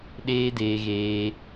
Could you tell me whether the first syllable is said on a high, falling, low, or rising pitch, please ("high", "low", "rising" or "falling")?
high